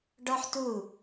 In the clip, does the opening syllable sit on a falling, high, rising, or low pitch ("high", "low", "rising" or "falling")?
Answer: high